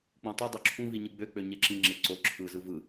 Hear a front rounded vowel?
yes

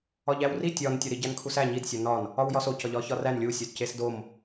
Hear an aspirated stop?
yes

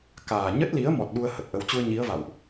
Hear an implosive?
yes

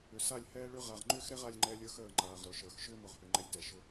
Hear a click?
yes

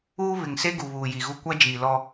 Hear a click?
no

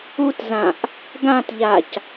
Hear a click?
no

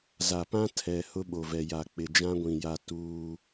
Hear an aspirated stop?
yes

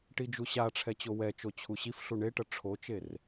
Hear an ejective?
no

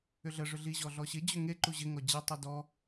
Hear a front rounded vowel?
yes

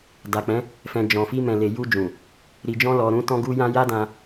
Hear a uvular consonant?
no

